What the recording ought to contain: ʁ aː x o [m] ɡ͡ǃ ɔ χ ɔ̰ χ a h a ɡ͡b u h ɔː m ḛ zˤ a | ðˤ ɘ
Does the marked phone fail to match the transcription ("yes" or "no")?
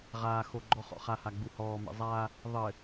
yes